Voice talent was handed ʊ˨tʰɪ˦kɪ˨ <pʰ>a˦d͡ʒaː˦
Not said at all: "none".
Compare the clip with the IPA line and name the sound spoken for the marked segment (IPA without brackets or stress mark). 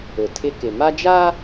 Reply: m